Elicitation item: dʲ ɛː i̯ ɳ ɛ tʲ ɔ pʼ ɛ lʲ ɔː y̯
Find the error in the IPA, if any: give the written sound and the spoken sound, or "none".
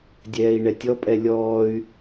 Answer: none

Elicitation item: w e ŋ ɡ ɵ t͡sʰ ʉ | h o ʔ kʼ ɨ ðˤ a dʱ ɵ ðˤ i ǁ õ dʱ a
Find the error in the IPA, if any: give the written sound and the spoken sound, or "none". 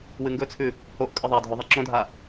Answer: e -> ɨ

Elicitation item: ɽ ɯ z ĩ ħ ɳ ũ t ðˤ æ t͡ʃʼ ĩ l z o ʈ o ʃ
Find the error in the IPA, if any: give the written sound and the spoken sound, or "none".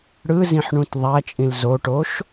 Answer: none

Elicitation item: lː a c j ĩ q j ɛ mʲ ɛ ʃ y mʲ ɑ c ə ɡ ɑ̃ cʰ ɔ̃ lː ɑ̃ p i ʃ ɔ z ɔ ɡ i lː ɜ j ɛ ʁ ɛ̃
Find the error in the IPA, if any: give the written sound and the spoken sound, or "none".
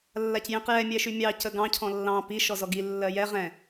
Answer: none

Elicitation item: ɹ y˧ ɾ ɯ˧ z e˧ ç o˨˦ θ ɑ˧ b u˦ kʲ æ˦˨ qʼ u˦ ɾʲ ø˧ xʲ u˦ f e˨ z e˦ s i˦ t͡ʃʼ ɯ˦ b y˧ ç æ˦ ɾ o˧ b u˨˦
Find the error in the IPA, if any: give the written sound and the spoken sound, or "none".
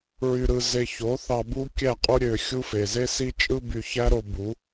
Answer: none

